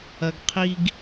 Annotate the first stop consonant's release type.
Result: plain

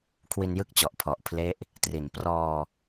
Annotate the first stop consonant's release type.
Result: aspirated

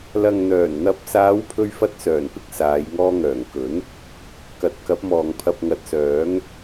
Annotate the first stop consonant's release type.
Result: plain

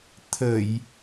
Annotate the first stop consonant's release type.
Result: aspirated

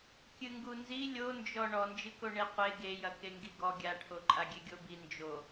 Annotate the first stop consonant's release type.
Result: plain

